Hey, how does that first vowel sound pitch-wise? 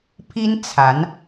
high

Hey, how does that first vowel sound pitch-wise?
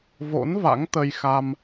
rising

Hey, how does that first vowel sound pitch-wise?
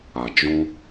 low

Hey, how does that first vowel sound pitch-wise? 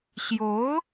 rising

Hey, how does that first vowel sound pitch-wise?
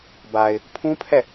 low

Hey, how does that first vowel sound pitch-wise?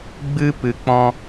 high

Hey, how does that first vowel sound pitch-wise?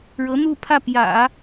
rising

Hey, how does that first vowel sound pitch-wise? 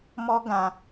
high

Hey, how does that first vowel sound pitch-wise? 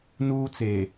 high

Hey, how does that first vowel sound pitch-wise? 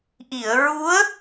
low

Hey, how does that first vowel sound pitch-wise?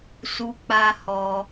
high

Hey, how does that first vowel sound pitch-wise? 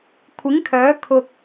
rising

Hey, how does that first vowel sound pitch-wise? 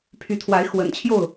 rising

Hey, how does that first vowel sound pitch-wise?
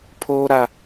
high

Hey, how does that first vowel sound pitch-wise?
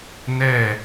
falling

